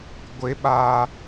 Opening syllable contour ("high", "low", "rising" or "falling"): high